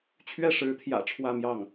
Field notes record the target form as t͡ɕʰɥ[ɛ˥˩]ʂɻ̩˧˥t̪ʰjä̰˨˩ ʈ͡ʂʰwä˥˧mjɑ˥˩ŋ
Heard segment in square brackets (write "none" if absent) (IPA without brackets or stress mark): ɛ˥˩